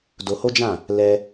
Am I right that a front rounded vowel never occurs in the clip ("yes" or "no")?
yes